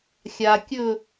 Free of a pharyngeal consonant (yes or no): yes